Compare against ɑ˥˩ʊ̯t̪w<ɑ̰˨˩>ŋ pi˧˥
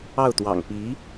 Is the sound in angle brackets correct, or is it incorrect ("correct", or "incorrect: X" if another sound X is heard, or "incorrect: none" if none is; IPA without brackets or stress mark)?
correct